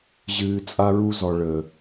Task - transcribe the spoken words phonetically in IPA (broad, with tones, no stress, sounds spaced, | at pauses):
ʑ ɨː˧ t͡sʼ a˦ ɹ u˦ z ɔ˨ ɭ ə˨